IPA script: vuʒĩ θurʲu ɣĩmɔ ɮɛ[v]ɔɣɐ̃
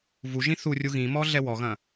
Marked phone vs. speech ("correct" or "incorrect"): incorrect